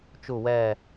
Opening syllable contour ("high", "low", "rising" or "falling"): falling